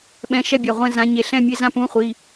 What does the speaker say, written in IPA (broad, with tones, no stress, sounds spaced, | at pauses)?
ɓ ɛ̃˧˥˧ ʃ ɛ˥˧ bʲ a˩˧˩ ʁʷ ɛ̃˥˧ z ã˨˦ ɲ e˧˩ ɬ ɛ̃˥˧ mʲ e˧˥˧ z ã˥˧ p ũ˧˥˧ χʷ i˩˧˩